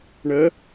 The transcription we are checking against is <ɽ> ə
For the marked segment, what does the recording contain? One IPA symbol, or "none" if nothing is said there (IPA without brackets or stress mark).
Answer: ɳ